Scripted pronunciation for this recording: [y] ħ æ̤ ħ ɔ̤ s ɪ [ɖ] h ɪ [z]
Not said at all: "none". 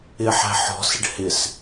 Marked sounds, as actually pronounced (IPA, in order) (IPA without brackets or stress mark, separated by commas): ɪ, ɖ, s